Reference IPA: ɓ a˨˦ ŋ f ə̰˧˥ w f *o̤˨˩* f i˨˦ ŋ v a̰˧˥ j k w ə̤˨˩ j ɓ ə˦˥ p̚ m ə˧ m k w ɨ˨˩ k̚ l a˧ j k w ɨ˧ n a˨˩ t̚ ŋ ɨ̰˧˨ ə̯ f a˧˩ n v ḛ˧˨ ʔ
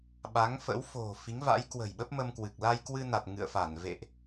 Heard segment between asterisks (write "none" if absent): o̤˨˩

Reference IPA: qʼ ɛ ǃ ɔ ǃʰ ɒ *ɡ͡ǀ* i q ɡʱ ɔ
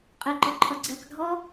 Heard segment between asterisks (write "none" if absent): ɡ͡ǀ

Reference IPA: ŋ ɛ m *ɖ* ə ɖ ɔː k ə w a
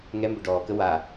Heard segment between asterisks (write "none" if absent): b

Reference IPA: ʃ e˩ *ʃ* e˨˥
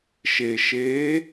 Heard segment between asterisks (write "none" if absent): ʃ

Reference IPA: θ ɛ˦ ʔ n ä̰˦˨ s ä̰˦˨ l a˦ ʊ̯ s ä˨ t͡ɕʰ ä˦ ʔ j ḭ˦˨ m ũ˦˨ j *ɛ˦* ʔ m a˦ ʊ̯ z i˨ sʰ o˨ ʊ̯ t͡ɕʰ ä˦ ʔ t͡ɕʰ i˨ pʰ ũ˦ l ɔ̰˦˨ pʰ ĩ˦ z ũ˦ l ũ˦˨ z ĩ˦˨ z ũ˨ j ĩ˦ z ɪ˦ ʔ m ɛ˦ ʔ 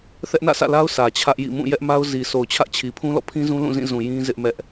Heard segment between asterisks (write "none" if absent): ɛ˦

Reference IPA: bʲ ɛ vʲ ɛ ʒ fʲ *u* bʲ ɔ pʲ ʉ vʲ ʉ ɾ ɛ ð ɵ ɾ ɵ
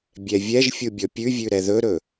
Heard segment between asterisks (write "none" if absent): u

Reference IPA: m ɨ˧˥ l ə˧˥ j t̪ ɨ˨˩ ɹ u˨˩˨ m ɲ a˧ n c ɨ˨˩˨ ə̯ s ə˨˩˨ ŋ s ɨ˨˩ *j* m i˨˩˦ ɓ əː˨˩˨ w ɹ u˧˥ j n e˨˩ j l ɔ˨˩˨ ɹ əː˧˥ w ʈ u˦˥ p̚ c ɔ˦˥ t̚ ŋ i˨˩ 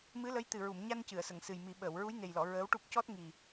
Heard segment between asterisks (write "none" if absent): j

